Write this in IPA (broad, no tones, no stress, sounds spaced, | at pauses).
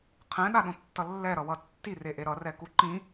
qʰ ɛ̃ ɗ a ɗ õ tː ʌ lː ɛ ɾ ʌ w ʌ tː i r e ʔ e ɾ ʌ r ɛ k u ǃ ĩ